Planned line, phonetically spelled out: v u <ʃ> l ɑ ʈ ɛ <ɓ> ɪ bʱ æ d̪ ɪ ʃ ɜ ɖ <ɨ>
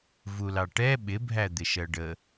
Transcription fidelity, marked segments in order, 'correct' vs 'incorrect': incorrect: none, correct, incorrect: ə

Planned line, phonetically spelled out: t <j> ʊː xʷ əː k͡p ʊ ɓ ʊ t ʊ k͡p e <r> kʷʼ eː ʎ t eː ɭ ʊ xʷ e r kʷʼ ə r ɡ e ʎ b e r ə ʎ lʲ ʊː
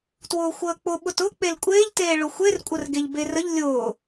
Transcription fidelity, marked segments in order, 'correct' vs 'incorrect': incorrect: w, incorrect: l

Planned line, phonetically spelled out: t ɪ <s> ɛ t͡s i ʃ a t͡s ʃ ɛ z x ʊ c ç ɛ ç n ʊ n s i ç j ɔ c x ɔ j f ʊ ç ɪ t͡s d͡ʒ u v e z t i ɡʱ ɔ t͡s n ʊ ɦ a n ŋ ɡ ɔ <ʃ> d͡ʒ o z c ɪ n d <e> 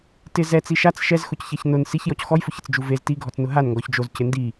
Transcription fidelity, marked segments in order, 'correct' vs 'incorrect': incorrect: z, incorrect: ç, incorrect: i

